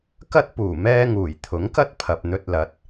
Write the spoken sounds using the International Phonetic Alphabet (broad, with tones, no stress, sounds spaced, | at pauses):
k ɐ˥ t̚ p uː˨˩ m ɛː˧ ŋ uː˨˩ j t̪ʰ ʊ˨˥ ŋ k ɐ˥ t̚ pʰ ɐ˨ p̚ n̪ ɵ˧ t̚ l ɐ˨˥ t̚